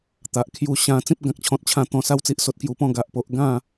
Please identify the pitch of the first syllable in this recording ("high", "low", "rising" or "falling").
low